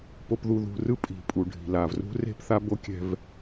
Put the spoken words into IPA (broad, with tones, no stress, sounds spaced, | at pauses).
p o˨ p ð u˨ ð ṳ˨ r ɯ˦ pʼ i̤˨ pʼ u˨ ɖʱ i̤˨ l a˨ v r ṳ˦ r e̤˦ p θ a˦ b o˦ kʲ ɛ̤˦ v